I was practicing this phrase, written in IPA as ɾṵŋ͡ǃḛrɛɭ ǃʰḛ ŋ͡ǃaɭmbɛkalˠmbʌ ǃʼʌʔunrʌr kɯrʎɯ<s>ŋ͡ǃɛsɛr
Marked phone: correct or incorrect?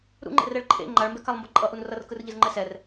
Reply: incorrect